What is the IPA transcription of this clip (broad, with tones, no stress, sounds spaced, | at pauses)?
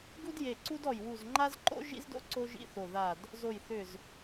ɡ u˥ d j e˧˩ ǀ u˥ d ɔ˧˩ j w u˧˩ z ŋ͡ǃ a˥ z ǃ o̰˥ ʒ ḭ˥ z d o̰˥ ǀ o˥ ʒ ḭ˥ θ o˧˩ ð a˧˩ d | z o˧˩ j θ ʏ˧˩ z